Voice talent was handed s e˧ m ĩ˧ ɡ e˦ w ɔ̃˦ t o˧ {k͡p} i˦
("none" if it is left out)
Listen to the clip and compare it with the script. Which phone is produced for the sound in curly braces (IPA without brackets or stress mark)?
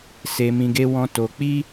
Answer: k͡p